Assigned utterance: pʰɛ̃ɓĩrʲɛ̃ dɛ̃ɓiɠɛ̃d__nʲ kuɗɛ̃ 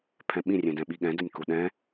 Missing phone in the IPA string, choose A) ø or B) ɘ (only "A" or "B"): B